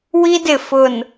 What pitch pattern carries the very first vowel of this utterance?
high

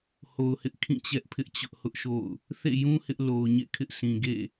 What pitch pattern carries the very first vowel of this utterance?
low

